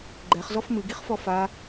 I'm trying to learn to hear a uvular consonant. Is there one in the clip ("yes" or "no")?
yes